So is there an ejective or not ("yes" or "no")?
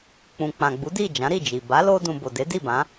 no